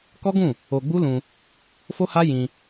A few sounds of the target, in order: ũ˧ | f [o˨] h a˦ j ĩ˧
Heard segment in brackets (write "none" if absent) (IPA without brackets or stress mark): o˦